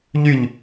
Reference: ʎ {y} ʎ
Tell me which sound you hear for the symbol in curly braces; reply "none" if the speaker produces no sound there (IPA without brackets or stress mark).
y